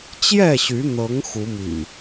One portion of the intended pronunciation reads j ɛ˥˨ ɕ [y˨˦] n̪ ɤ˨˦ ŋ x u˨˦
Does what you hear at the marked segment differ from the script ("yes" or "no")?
no